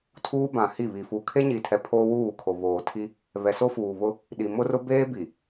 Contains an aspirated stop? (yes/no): yes